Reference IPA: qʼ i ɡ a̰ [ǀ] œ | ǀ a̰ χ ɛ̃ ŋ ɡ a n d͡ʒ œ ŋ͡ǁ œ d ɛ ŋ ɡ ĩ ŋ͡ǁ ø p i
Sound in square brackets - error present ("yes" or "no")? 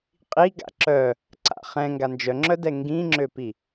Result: yes